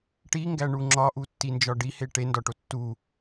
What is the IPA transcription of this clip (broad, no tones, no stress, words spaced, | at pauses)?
ʈiŋɡæ ɳuŋ͡ǁɒʔu tːind͡ʒɒɖihe ʈendɒʈo tːu